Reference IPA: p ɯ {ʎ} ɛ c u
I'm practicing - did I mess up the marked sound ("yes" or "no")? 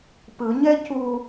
yes